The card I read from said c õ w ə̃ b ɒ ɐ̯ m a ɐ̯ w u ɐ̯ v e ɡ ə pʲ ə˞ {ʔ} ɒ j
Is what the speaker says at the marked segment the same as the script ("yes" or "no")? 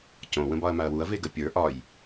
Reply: yes